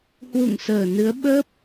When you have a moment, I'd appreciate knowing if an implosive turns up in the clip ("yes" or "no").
yes